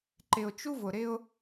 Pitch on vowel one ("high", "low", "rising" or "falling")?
low